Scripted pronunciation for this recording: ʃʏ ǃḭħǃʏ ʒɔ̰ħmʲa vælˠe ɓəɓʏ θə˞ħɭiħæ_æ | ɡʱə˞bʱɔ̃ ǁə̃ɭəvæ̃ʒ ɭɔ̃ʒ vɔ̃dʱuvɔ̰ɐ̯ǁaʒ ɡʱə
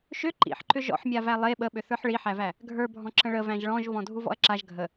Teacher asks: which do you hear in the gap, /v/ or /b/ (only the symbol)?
v